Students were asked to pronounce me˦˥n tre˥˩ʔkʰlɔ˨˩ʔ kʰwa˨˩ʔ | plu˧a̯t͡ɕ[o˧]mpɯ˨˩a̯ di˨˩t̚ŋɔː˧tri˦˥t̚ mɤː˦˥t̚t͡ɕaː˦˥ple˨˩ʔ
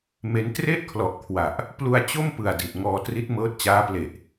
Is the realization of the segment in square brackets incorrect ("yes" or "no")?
yes